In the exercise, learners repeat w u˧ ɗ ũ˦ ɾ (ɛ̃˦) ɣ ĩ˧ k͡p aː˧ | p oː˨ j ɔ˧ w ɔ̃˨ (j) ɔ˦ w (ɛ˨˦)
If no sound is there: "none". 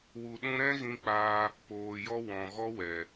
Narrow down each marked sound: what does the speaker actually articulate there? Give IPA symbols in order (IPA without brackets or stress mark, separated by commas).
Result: ɛ̃˦, ɣ, ɛ˨